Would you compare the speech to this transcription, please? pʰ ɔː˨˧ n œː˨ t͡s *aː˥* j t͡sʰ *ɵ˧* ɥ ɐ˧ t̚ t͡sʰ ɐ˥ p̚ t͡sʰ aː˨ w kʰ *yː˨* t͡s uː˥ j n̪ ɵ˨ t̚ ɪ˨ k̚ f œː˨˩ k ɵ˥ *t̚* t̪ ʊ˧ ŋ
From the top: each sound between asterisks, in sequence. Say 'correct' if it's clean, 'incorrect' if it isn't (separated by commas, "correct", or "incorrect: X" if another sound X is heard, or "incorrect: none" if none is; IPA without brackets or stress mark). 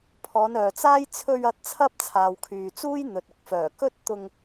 correct, correct, correct, correct